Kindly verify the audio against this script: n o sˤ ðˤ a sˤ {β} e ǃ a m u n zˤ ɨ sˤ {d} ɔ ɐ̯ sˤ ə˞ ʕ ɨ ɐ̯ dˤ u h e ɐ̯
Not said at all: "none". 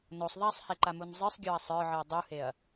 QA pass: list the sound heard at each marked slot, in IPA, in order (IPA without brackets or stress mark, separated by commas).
h, ɡʲ